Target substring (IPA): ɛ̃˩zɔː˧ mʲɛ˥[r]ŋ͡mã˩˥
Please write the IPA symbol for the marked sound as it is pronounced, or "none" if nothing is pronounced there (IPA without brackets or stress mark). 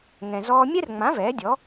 r